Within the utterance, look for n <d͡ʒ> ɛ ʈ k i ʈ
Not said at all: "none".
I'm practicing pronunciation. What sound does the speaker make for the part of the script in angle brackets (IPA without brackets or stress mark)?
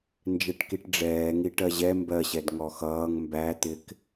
d͡ʒ